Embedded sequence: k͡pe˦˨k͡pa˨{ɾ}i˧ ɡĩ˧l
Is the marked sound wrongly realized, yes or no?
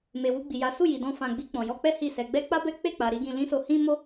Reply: no